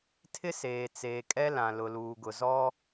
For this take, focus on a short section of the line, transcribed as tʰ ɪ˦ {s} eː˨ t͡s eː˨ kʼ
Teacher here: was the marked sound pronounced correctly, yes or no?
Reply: yes